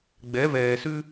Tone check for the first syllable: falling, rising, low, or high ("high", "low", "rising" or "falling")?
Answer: rising